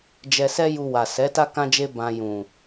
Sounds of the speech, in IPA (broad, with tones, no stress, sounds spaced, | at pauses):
d͡ʒ ɛ˧ s ɛ˦ j u˧ w a˨ s ɛ˨˦ t a˦ k ã˦ d͡ʒ e˦ b ã˧ j ũ˨